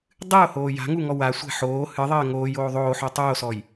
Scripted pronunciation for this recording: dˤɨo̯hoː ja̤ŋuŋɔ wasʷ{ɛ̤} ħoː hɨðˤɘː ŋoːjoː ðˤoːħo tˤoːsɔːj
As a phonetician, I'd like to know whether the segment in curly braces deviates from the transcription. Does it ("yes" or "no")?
no